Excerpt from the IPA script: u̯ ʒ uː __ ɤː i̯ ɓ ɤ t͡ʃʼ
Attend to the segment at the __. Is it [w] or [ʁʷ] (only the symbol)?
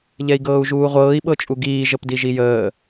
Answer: ʁʷ